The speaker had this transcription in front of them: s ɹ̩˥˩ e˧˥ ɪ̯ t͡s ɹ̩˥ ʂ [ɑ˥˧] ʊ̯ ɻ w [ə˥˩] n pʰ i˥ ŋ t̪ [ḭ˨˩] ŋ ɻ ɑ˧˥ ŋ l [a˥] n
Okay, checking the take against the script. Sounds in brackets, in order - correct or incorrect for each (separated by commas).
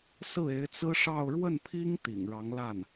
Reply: correct, correct, correct, incorrect